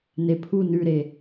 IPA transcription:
nepʰu nʉɾe

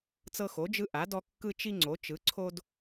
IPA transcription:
t͡sɤ˦xo˩˥d͡ʒɯ˦ ʔa˩˥dɔ˦ kːɯ˦t͡ʃi˦ ŋ͡ǀo˩˥t͡ʃɯ˩˥ ǀʰo˦d

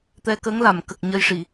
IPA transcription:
t̪ɛ˧kə˧˥ŋla˨˩˨mkə˨˩k̚ ɲə˧jʂi˨˩˨

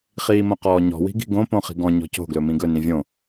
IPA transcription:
χiːmõqɔːɲɔ̤ wi̤ɡi̤ɡõ põχi̤ɡɔ̃ ɲɔ̤co̤ ɡlɵmĩɡɵ nĩvʲõ

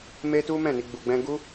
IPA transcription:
me˦tu˦ mɛ̃˦˨ni˧ ɡ͡bu˧ɡ͡bɛ̃˦ ɡu˦

